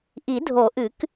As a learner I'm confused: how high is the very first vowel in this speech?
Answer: high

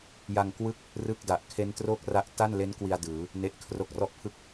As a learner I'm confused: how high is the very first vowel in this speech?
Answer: low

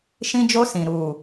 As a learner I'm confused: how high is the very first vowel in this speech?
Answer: high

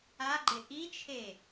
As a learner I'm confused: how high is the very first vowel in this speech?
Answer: low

